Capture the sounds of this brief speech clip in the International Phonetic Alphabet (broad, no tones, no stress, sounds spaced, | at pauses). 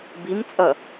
b i m t͡sʼ ʌ